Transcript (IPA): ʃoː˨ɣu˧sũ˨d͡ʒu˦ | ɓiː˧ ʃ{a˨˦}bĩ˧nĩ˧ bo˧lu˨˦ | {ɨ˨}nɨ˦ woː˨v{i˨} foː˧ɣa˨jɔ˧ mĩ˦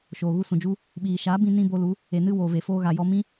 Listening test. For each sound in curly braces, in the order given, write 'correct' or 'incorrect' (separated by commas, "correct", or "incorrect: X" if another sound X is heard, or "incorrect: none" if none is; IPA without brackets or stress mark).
correct, incorrect: e˨, incorrect: e˨